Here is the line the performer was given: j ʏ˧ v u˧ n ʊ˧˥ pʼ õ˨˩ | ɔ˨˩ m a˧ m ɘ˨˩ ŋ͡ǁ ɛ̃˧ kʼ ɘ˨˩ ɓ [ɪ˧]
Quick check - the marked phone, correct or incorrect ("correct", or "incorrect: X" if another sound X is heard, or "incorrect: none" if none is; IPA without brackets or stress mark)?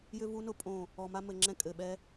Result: incorrect: ɛ˧